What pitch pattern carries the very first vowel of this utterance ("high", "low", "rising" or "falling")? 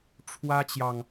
high